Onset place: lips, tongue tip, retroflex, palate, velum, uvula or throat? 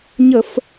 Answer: palate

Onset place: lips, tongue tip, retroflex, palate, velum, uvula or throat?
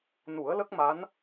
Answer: tongue tip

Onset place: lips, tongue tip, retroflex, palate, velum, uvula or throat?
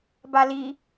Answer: lips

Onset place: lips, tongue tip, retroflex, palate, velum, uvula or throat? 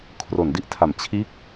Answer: velum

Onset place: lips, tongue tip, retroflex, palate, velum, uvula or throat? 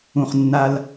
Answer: uvula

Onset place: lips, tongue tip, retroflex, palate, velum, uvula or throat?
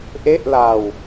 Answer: throat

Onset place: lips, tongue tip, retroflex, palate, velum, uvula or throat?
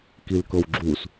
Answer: velum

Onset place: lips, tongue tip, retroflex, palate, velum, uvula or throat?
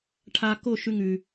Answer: retroflex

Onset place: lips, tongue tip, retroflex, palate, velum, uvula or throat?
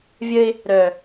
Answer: lips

